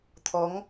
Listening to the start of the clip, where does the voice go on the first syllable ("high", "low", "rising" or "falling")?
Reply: rising